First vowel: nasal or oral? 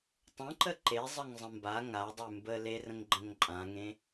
nasal